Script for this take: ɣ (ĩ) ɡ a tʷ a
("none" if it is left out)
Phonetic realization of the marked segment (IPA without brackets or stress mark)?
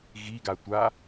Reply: i